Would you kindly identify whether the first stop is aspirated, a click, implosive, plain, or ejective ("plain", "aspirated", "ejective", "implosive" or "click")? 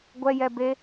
plain